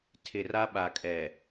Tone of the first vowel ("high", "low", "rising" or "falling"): low